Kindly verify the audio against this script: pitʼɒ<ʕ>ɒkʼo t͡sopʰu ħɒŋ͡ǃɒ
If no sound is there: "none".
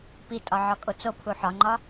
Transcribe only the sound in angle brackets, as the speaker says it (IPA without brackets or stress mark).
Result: ʕ